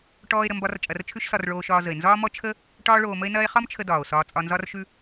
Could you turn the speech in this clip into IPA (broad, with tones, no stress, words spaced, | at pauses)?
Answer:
ʈɔː˥e̯ɾə˧mbɒ˥r t͡ʃʼɐ˧rt͡ʃʰʉ˥ʃsɒ˧r ɭoː˧ʃɒː˧zə˩e̯ nzɒː˥mɔ˥ t͡ʃʰə˥ | ʈɒː˥ɭoː˧mə˥e̯nɐː˥e̯ χɒ˥mt͡ʃʰə˧ dɒː˩o̯sɒː˧ t͡sʼɒ˧nzɒ˥rʃʉ˥